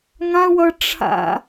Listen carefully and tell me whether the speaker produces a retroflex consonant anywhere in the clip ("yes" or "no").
yes